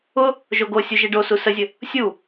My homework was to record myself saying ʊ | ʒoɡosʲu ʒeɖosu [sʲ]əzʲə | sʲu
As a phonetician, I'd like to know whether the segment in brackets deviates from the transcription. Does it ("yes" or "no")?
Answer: yes